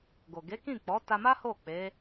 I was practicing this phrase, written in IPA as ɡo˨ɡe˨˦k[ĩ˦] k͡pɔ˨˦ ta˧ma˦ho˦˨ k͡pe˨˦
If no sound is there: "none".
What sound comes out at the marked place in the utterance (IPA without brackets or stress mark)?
ĩ˦˨